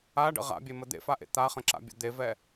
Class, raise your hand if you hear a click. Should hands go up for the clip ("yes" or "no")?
yes